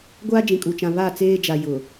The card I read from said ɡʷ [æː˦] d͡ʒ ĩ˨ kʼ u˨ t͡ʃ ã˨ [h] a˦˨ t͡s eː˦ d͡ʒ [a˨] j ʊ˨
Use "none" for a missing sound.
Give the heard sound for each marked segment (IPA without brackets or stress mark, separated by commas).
aː˦, β, a˨